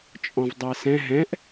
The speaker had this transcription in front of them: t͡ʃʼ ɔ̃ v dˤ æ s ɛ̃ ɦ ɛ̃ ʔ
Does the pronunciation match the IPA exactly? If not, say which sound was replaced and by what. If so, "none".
none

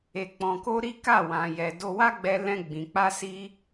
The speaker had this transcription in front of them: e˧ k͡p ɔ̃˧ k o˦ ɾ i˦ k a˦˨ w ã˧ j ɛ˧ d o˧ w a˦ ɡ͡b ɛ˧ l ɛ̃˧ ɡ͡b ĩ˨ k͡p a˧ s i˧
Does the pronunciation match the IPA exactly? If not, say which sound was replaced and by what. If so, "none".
none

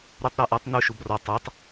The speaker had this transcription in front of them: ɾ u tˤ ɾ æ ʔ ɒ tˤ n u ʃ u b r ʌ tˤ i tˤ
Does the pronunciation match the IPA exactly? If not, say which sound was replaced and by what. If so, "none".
ʌ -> ɒ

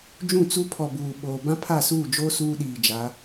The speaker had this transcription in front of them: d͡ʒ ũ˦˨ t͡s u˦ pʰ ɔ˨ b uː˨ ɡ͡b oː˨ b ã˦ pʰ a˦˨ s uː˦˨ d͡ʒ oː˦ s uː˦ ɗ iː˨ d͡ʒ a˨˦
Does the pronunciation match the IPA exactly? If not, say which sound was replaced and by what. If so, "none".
ɡ͡b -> ɓ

